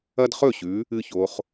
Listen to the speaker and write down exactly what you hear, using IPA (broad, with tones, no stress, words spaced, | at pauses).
ɐ˦dχɵ˥˩ɕʉ˨˦ | ɨ˦ço˨˦χ